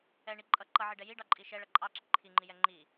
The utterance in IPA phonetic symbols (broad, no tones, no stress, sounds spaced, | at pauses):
ɛ ɳ i ǃʼ ʌ ǃ ʌ ʕ i ɖ ɛ j i ɖ ɑ ǃʼ i ʃ ɛ ɭ ʌ ǃʼ ɑ ǁ i ǃʰ i ŋ͡ǃ i j ɛ ŋ͡ǃ i